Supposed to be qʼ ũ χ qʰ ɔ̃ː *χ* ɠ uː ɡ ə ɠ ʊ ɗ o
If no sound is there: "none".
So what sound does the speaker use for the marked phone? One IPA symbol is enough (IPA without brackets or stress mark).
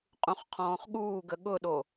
χ